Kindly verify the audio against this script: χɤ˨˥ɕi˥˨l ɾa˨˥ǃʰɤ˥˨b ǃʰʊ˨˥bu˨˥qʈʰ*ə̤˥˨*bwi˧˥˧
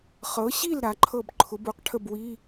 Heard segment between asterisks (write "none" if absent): ə˥˨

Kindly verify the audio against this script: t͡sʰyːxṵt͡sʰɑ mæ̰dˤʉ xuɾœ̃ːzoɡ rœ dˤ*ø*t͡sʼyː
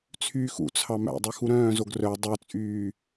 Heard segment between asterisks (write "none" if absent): œ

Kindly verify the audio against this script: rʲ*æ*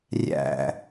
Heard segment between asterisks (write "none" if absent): æ̰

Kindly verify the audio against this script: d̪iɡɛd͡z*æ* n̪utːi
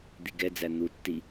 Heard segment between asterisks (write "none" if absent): æ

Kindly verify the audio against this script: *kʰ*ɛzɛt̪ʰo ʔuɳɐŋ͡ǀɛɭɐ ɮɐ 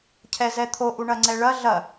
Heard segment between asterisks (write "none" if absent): cʰ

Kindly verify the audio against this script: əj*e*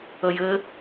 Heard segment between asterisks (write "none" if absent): ɘ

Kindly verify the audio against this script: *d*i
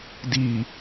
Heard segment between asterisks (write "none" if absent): d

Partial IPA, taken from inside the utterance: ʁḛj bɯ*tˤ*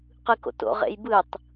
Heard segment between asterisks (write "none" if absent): tˤ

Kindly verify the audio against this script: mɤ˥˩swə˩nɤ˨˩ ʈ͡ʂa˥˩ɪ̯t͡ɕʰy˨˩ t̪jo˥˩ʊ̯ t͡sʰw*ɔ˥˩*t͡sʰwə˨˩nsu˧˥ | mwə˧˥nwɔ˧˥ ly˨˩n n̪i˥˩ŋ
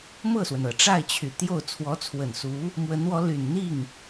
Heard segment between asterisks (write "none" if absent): ɔ˧˥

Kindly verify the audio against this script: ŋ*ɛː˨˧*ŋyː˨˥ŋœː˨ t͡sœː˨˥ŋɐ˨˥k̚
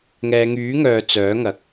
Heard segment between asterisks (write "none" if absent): ɛː˨˧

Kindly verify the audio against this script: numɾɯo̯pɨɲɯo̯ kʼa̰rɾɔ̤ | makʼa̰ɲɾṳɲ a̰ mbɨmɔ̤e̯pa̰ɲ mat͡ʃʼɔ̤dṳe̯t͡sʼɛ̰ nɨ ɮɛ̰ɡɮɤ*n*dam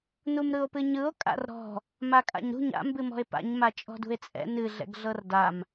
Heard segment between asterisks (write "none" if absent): r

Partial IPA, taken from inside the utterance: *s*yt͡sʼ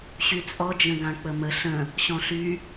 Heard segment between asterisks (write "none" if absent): ɕ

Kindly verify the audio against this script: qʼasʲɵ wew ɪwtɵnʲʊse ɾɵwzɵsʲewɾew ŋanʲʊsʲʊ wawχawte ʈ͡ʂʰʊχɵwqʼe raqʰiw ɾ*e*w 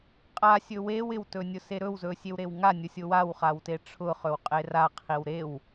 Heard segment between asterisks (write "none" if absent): e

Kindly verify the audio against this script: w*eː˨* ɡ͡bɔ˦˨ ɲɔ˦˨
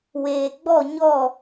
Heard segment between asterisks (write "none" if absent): eː˨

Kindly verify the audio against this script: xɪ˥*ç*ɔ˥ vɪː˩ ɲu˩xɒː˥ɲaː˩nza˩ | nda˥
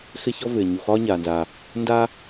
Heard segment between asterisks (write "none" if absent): ç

